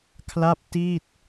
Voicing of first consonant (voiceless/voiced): voiceless